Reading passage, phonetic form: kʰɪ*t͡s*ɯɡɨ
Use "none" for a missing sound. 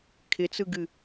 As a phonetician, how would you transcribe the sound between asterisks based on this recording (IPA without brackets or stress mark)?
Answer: t͡s